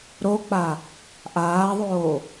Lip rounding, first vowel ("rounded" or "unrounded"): rounded